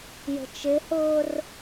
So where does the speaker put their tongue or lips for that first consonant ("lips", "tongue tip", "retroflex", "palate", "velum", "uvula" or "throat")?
palate